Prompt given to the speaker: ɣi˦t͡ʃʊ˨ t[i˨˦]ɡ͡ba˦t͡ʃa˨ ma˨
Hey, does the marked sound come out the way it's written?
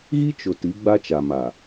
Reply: yes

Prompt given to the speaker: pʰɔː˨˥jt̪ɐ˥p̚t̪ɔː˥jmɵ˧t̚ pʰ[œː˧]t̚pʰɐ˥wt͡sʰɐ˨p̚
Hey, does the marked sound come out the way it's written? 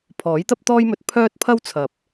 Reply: no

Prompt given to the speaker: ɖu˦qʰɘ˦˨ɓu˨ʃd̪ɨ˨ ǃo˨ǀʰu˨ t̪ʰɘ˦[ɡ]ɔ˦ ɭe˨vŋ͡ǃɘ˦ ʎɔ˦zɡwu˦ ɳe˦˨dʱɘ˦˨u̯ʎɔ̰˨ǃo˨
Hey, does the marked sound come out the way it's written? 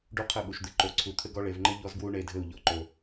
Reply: yes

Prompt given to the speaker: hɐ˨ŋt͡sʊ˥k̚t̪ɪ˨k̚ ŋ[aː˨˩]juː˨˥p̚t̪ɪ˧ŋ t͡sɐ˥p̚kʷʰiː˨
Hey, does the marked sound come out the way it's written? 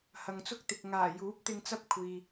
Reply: yes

